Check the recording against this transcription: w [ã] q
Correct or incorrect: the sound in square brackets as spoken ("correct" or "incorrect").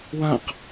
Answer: correct